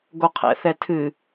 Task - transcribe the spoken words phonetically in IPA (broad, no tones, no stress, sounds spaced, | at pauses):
ɡ o qʰ ɛ̰ θ ɛ tʰ ɨ